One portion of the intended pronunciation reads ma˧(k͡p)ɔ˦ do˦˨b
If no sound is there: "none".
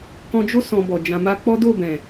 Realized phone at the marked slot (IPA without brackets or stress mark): k͡p